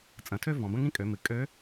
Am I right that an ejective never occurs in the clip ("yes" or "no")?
no